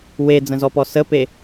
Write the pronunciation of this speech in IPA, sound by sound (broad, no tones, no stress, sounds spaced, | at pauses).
w e d͡z ə̃ z ɔ p ɔ s ə p e